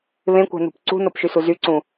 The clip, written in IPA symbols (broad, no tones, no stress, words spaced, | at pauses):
βẽkʷæ̤nṳp ǀṳnopʃysu zyǀũ